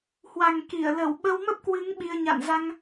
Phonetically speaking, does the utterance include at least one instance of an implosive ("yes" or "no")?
yes